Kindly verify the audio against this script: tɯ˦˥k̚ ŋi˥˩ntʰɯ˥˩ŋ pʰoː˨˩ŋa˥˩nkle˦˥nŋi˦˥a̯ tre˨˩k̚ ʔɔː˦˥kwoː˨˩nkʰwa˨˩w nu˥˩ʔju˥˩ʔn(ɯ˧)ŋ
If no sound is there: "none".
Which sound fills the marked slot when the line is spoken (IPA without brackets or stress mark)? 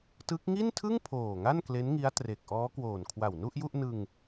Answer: ɯ˧